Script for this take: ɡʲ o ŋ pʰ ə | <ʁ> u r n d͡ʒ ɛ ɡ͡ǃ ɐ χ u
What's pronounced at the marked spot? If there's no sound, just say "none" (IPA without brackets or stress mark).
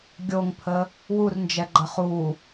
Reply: w